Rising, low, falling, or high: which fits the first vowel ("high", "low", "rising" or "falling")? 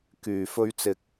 low